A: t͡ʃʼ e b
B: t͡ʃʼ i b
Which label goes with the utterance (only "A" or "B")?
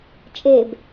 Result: A